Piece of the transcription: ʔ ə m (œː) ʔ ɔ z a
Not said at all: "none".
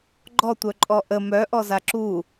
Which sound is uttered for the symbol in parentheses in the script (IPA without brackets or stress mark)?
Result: œ